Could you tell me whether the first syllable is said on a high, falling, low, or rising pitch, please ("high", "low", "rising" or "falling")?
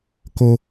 low